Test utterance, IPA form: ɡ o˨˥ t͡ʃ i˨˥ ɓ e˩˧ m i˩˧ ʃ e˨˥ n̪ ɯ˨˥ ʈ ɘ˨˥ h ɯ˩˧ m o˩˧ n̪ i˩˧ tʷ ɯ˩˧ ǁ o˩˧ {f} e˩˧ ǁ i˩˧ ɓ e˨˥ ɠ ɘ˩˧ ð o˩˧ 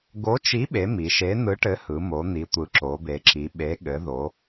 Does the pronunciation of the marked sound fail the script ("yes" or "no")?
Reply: yes